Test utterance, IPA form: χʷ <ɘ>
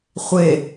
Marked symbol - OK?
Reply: no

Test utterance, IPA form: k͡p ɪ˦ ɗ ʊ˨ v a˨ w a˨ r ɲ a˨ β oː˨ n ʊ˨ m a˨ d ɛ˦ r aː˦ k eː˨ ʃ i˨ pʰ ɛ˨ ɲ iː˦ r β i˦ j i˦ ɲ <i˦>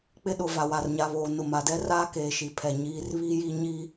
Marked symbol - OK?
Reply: yes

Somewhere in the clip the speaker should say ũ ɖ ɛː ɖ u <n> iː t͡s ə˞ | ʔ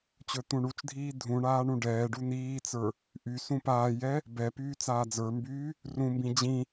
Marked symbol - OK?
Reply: yes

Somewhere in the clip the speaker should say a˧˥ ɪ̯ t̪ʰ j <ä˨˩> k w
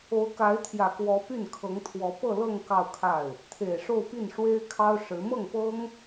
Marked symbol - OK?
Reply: yes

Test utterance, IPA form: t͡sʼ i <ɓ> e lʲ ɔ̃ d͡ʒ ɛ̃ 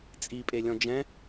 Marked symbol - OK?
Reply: no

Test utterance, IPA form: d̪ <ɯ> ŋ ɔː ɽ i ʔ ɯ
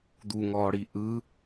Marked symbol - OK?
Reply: no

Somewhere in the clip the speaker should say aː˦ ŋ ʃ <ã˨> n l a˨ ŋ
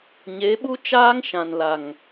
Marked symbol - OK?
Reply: yes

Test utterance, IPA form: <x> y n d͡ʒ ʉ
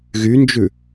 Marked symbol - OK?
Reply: no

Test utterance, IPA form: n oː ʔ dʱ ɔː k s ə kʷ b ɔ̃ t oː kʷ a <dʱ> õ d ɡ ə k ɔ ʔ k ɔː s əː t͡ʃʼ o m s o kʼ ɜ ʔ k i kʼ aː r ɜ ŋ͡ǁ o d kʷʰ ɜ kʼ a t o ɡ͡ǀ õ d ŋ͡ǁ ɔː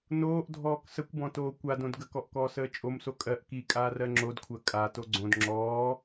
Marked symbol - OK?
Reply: no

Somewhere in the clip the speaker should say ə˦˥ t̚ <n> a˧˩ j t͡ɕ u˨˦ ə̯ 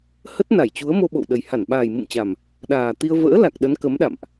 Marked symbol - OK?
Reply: yes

